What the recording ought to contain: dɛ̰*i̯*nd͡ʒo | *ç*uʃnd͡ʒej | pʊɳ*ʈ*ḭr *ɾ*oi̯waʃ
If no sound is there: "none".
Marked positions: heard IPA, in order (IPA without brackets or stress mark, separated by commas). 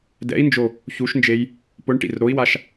i̯, ç, ʈ, ɾ